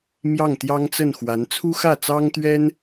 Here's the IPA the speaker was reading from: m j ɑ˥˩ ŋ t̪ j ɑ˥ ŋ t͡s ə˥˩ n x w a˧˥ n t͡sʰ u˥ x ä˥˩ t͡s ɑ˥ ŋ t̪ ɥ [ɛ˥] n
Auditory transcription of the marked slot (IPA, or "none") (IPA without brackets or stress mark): ɛ˥